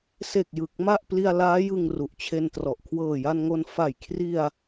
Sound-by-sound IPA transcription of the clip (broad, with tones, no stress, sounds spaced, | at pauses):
s e˨˩ k̚ j ɯ˨˩ k̚ m a˥˩ ʔ p l i˧ a̯ l aː˦˥ j ɯ˧ ŋ r u˨˩ ʔ t͡ɕʰ e˧ n t r ɔ˨˩ ʔ kʰ w ɤː˨˩ j a˧ n ŋ o˧ n f a˨˩ j kʰ r i˧ a̯